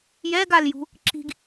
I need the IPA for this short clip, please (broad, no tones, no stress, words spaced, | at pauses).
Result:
jɛɡaljṳ | ǁi̤ɡ